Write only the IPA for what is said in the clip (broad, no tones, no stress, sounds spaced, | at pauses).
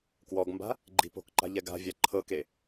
k w ɔ ɡ m b a̤ | ɡ͡ǃ i̤ p o̤ k ǃ a̤ ʎ ɛ ɡ a̤ vʲ a ǃʰ ɤ k e